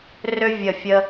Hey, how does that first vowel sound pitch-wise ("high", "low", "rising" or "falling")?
high